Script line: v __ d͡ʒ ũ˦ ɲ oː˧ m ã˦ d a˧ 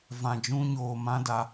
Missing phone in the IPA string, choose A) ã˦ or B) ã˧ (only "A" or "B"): B